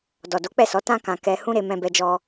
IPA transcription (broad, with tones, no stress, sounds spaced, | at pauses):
d ɔ˨ d o˨˦ k͡p ɛ˦˨ s ɔ˨˦ t ã˧ k ã˨ k ɛ˧ h ũ˦ ɾ e˧ m ɛ̃˧ b ɛ˧ d͡ʒ ɔ˧